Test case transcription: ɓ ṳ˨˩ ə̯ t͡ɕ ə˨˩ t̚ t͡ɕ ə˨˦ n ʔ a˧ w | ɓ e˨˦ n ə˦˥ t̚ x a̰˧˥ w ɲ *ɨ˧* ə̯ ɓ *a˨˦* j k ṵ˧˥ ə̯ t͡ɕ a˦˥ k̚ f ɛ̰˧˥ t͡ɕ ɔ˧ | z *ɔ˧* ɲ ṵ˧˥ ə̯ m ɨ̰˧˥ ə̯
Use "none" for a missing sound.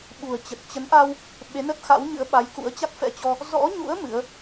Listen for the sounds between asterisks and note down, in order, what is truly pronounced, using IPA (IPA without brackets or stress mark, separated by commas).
ɨ̰˧˥, a˨˦, ɔ̰˧˥